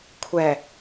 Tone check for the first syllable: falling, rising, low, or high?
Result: low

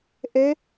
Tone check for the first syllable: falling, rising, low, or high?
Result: rising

